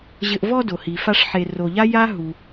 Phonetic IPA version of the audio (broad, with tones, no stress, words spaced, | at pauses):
ʑɘ˨ʔvɔ˦ do˩hi˩fa˦ʂħe˨ ro˨ʎa˥ja˥ ɦu˨